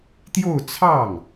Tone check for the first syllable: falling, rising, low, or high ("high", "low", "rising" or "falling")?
falling